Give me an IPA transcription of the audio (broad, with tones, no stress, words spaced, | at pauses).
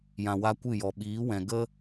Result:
jã˨wa˧ kʷɨ˦˨jɔ˨ ɓiː˨˦wɛ̃˨ɡə˦